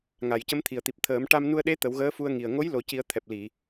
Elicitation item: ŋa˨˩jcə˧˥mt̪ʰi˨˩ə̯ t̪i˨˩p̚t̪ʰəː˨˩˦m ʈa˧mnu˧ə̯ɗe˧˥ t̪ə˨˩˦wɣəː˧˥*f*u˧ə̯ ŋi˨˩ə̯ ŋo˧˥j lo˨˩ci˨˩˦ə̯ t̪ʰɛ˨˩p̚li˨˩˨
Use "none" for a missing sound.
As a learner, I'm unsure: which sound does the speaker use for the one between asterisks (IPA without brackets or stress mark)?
f